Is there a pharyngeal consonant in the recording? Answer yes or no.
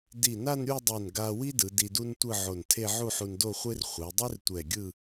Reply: yes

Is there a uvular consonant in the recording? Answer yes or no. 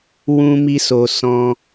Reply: no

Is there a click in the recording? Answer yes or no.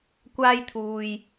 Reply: no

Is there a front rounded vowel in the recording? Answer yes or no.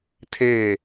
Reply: no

